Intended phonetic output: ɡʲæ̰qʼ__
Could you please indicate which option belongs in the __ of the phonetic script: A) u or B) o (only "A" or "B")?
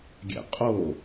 B